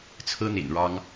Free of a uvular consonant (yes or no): yes